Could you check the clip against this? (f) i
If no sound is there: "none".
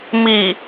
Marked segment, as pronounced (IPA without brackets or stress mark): m